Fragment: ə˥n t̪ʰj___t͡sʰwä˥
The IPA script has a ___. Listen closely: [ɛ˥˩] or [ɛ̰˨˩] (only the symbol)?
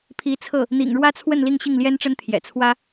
ɛ̰˨˩